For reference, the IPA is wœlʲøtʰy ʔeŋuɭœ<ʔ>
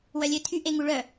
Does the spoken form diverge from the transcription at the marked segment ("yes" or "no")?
yes